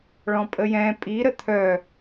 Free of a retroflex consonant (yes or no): no